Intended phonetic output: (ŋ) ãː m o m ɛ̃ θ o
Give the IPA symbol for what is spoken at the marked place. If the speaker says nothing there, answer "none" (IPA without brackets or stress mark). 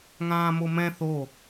ŋ